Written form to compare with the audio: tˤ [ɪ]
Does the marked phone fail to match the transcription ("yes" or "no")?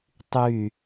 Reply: yes